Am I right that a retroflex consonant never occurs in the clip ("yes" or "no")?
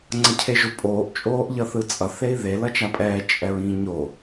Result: yes